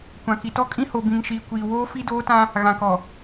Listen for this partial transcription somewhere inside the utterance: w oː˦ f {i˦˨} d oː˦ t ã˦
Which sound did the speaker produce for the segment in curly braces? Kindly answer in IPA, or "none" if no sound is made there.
i˦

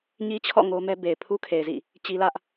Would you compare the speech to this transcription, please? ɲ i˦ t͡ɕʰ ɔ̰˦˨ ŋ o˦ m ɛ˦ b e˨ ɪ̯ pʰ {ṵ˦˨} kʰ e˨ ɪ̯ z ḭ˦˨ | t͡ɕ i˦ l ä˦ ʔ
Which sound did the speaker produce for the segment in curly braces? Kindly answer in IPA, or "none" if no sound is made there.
u˦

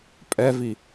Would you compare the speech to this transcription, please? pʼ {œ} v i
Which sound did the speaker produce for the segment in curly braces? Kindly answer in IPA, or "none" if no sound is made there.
ɛ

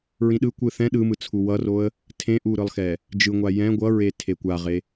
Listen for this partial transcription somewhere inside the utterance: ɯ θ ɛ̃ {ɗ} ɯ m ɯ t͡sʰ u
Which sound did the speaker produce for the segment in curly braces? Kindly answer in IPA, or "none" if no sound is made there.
ɗ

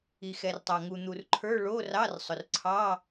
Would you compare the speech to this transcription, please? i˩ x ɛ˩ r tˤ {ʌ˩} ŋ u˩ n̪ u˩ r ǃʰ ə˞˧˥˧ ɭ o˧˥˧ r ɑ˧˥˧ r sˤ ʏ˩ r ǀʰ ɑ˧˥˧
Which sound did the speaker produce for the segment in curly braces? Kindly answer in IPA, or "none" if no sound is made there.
ɑ˩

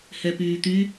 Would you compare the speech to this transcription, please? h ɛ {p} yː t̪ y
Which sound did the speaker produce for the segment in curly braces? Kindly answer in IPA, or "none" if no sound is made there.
p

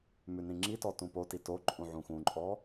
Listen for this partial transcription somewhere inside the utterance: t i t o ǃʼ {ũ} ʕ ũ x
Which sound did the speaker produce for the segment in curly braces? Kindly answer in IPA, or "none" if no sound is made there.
ũ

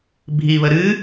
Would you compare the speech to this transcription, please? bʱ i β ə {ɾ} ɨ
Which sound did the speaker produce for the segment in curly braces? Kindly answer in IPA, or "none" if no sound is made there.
ɾ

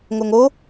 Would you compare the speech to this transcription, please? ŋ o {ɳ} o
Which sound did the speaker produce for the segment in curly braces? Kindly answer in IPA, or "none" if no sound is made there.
ŋ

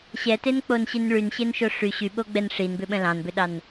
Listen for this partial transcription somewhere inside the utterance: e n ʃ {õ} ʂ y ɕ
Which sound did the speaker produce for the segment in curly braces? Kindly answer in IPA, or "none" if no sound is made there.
o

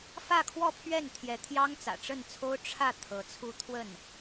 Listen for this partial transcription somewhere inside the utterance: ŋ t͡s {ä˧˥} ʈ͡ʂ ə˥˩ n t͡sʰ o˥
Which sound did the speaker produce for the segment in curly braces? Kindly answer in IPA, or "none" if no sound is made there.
ä̰˨˩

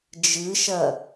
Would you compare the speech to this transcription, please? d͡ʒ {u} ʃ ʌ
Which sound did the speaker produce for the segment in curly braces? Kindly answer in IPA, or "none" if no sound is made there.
ɯ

